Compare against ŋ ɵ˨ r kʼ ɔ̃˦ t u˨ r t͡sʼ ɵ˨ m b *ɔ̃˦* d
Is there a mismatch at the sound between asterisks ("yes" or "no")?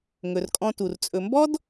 yes